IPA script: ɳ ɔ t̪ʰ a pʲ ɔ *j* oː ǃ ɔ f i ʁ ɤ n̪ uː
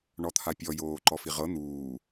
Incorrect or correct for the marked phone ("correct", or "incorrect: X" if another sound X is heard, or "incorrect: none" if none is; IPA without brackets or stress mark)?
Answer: correct